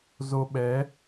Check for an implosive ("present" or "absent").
present